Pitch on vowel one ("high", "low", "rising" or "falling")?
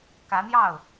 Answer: rising